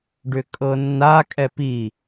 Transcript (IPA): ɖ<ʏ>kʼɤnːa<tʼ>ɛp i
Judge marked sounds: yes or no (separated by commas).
yes, no